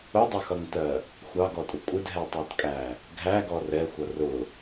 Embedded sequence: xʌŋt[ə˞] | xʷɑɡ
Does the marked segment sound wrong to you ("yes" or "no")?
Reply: yes